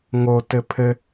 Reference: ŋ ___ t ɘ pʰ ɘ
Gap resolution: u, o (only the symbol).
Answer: o